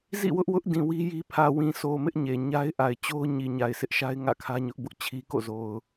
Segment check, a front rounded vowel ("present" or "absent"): absent